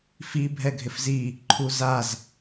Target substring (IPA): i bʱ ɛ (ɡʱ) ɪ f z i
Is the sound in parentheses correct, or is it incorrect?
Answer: correct